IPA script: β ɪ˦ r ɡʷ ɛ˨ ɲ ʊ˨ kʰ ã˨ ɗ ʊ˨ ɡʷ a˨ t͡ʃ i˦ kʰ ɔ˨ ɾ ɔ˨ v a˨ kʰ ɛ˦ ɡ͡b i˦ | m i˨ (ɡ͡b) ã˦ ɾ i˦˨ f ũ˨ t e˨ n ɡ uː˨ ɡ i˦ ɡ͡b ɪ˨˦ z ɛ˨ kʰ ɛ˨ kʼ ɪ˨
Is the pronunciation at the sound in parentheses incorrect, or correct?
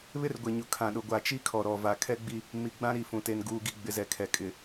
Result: correct